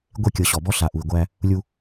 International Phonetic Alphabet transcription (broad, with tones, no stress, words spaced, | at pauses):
ɡʷe˦˨kʲɤ˨ɕɔ˨bɔ˦ ɬa˨ʔu˨i̯ɡʷæ˦ | lʲu˦